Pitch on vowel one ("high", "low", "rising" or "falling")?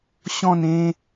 falling